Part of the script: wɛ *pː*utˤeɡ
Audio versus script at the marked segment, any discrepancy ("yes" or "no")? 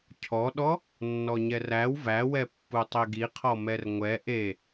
no